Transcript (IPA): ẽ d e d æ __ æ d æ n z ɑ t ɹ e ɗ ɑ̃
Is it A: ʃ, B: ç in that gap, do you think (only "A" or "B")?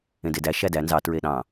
A